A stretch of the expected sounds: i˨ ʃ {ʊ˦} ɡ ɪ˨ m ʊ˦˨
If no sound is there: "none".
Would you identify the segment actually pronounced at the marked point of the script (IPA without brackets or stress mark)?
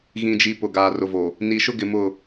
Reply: ʊ˦